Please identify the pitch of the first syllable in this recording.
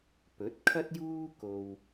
rising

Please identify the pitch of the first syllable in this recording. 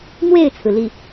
falling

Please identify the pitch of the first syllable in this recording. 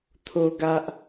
high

